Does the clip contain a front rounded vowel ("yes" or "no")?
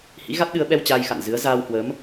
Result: no